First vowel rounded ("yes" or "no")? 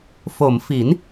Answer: yes